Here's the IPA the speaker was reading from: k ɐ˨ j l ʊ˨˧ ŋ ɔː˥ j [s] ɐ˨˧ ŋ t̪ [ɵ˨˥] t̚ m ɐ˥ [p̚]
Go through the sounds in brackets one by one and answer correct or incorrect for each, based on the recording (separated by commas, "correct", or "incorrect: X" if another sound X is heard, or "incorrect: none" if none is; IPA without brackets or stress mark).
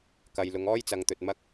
incorrect: t͡s, incorrect: ɵ˨, incorrect: k̚